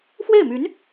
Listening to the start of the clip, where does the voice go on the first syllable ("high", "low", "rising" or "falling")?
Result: falling